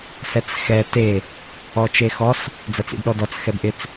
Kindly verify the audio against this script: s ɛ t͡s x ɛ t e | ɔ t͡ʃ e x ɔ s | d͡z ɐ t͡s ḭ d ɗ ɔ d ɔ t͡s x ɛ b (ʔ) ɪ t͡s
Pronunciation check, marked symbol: correct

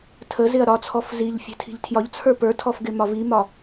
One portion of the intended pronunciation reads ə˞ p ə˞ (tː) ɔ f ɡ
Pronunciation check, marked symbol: incorrect: tʰ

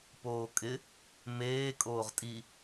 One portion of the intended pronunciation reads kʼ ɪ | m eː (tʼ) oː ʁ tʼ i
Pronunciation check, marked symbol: incorrect: kʼ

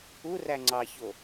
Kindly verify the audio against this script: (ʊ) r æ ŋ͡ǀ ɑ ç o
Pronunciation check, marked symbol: incorrect: u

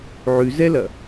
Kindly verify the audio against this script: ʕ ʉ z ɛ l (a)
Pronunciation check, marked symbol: incorrect: ɐ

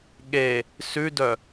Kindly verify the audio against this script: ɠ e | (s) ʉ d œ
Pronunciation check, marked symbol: correct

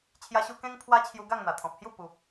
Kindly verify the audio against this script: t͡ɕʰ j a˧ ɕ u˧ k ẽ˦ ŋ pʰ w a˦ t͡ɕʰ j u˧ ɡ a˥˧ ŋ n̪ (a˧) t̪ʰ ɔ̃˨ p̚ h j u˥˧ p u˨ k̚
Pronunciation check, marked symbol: incorrect: a˨˩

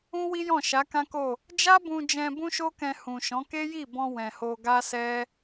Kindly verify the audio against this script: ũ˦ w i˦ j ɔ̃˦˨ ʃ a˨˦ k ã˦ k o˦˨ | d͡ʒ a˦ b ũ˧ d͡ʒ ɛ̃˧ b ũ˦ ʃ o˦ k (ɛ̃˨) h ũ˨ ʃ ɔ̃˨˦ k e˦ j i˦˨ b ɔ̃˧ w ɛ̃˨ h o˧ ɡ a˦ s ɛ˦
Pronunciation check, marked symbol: incorrect: ɛ̃˧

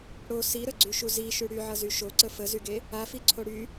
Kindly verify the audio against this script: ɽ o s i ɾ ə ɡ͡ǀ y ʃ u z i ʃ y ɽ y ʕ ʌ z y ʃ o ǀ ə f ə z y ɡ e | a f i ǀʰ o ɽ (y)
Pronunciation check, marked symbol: correct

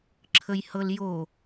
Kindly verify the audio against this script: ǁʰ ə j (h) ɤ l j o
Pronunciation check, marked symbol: correct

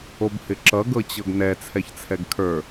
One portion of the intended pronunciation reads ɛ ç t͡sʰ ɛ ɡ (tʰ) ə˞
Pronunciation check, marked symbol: incorrect: kʰ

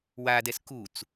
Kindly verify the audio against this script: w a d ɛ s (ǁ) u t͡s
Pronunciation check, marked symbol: incorrect: k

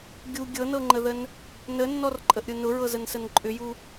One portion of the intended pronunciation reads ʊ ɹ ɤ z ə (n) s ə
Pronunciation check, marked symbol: correct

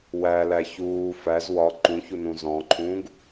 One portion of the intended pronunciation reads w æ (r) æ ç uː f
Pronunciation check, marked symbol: incorrect: l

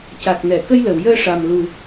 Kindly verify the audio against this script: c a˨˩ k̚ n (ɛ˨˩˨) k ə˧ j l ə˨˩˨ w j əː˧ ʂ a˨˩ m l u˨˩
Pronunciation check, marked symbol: correct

